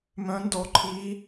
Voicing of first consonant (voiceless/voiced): voiced